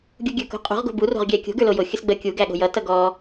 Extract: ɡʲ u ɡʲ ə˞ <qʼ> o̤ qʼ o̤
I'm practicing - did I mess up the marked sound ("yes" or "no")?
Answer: yes